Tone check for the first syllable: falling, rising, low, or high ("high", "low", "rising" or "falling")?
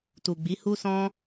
low